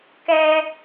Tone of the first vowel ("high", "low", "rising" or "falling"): high